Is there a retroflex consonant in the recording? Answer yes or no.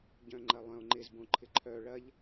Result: yes